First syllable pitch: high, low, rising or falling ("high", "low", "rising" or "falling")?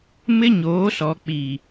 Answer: high